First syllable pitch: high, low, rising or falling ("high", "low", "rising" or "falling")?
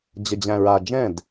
low